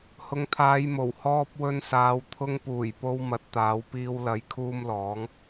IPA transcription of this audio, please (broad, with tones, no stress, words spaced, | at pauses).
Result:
hʊ˨˧ŋt̪ʰaː˨˧jmo˨˩w hɔː˧p̚wɵ˧nsaː˨˧w t̪ʰʊ˧ŋpuː˨˩jpo˧w mɐ˨˥t̚t̪aː˨˥wpiː˧w lɐ˨˥jkʰuː˧m lɔː˨˥ŋ